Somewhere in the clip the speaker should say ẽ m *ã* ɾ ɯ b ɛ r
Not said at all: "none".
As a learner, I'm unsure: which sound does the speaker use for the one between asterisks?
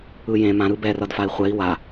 ã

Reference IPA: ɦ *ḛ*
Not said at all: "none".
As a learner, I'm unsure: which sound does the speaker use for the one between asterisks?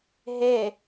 e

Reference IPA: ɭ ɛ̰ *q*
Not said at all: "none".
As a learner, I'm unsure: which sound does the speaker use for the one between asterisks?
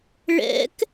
k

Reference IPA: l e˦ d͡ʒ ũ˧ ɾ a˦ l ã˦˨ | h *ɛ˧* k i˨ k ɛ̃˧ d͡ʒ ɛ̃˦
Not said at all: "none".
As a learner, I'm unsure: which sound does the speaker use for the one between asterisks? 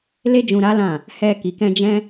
ɛ˧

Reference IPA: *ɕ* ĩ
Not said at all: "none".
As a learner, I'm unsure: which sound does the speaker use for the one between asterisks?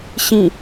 ɕ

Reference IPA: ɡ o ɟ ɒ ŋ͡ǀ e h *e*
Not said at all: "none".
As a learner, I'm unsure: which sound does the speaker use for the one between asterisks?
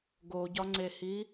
i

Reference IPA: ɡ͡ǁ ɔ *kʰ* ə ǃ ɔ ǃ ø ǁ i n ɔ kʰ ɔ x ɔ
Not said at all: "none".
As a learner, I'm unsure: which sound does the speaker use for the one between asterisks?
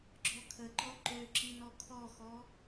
kʰ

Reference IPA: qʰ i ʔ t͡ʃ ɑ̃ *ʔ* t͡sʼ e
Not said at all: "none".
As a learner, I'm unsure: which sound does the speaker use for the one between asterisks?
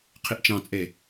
none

